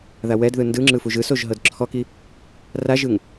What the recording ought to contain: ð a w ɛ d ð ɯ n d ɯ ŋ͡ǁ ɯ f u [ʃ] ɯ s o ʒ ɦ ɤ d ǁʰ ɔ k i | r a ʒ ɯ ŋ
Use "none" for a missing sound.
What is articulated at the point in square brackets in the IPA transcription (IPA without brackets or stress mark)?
ʒ